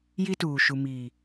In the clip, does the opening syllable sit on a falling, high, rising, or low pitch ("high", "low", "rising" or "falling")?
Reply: high